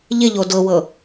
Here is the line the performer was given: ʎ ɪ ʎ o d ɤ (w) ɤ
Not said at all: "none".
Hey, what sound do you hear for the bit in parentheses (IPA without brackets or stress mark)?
w